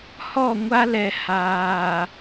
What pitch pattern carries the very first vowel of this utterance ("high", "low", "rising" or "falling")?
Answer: falling